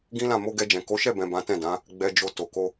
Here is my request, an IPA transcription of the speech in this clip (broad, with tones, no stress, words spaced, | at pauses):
ɡĩ˦lã˦˨ mo˧ɡɛ˧d͡ʒɛ̃˨ ko˨˦ʃɛ˦˨bɛ̃˨ bã˨˦tɛ̃˦˨dã˨˦ | ɡ͡bɛ˨d͡ʒo˨ to˨ko˧